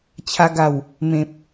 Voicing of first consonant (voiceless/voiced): voiceless